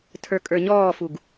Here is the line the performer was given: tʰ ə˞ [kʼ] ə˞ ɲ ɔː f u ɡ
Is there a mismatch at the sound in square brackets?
no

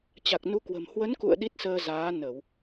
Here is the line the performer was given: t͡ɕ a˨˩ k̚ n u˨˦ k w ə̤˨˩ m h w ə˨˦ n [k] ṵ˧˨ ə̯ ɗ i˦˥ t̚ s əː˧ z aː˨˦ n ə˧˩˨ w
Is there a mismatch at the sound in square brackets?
no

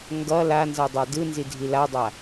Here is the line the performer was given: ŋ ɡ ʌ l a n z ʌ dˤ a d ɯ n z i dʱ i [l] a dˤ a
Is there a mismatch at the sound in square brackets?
no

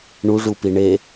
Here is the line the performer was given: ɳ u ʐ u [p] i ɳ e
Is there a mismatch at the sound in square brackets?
no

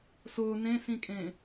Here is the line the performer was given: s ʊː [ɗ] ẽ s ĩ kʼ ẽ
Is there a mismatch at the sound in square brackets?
yes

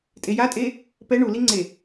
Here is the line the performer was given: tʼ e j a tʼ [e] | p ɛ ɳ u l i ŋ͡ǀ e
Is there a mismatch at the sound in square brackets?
no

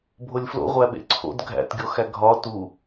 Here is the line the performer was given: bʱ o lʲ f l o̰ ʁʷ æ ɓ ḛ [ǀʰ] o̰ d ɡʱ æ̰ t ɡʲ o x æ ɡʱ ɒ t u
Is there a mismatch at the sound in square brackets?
no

